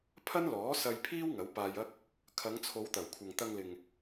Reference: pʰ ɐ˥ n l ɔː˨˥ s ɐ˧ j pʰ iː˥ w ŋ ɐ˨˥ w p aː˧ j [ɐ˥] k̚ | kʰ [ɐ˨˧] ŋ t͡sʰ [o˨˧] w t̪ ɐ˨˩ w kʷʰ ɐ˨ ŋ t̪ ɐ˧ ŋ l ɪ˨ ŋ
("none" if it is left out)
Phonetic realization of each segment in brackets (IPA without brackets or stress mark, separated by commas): ɐ˥, ɐ˨˧, o˨˧